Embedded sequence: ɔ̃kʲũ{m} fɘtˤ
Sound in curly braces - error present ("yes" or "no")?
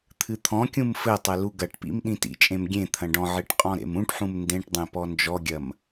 no